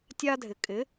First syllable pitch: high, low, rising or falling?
high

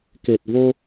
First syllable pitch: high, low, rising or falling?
low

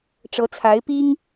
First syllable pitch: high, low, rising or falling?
rising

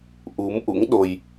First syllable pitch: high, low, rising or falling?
rising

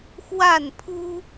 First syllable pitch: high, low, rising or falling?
falling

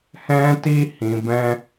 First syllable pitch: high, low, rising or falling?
high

